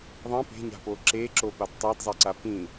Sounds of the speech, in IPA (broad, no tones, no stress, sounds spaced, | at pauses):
ðˤ ɛ̃ p e̤ ɲ a̤ p o ǁ e ǁ o p a d tˤ a d zˤ e ǀ a p ĩ